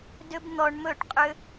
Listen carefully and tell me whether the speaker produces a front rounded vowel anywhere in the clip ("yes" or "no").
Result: yes